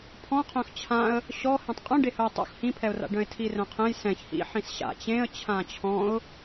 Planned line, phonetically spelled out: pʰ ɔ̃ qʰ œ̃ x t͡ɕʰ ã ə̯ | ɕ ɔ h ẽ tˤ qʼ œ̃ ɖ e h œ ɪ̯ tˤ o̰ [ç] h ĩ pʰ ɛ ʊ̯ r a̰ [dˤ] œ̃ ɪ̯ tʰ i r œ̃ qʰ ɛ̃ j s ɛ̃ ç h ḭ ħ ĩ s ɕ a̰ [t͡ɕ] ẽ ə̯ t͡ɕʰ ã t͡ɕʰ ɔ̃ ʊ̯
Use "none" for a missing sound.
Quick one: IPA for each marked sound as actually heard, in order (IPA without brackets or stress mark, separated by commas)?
x, ɖ, t͡ɕ